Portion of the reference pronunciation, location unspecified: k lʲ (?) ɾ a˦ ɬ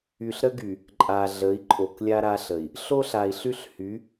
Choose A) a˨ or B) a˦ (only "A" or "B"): B